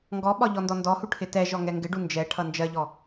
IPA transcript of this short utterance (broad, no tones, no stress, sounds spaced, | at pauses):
ŋ ɡ ɔ ɓ ɒ ʎ ɔ n d ɔ n d ɔ h u ʈʰ ɪ t ɛ ʒ ɔ ŋ ɛ ŋ ɡ ɪ ɖ u n d͡ʒ ɛ ʈʰ ʌ n d͡ʒ ɜ ʎ ɔ